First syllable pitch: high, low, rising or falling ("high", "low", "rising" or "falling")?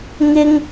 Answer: high